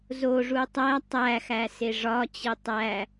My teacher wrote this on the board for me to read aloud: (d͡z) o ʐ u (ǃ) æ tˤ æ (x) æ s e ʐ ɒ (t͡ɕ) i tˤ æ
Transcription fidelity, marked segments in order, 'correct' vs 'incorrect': incorrect: z, incorrect: tˤ, correct, correct

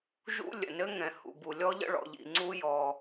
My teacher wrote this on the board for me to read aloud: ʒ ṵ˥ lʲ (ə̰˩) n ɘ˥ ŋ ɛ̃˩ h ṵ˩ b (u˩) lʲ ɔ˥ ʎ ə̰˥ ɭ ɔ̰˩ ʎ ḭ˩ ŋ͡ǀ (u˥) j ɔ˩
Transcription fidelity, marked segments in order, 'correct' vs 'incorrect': correct, correct, correct

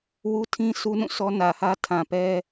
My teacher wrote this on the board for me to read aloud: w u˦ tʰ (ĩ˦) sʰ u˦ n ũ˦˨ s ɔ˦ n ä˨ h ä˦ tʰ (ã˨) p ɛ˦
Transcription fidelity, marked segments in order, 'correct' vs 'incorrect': correct, correct

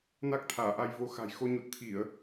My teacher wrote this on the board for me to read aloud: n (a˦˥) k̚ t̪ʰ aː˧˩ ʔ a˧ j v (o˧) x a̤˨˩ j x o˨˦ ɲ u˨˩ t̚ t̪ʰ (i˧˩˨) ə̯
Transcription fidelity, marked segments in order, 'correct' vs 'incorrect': correct, correct, correct

